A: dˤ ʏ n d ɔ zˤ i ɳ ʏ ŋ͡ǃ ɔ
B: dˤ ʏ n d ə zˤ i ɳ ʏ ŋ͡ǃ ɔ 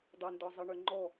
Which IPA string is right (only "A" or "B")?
A